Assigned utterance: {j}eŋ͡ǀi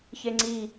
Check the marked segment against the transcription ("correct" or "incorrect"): incorrect